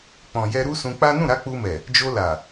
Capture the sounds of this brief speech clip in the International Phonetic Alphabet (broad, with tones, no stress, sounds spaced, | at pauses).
k͡p ɔ̃˨ j ɛ˧ ɾ u˦ s ũ˧ k͡p a˦ n ũ˦˨ ɾ a˨˦ k͡p u˧ m ɛ˨ | d͡ʒ o˧ l a˨